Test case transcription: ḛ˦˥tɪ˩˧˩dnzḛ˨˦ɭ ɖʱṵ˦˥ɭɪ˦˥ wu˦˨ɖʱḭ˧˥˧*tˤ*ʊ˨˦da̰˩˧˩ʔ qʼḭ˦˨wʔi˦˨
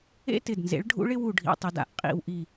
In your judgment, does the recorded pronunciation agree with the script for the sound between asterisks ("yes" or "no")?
yes